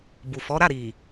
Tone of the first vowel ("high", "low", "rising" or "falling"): low